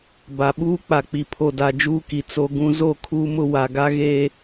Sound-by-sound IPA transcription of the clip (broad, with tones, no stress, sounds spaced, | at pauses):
b a˨ ɓ uː˦ k͡p a˨ k͡p i˨ pʰ o˨ d a˨ d͡ʒ uː˦ k i˨ t͡s o˦ ɡ ũ˦ z o˦˨ kʰ uː˦ m ʊ˦ w a˨ ɡ a˦ ɣ eː˦